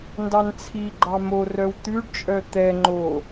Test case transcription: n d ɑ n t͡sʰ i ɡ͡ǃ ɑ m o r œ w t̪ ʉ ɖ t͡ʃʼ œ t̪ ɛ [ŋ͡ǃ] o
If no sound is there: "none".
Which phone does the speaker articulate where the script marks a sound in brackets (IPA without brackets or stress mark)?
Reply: ŋ͡ǃ